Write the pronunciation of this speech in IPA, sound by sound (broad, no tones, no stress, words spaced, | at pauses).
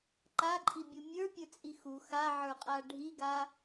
ǃaǃʼibʲu mʲə˞pʲə˞t͡sʼi xu xaʕə˞qʼa ɖʱiɡa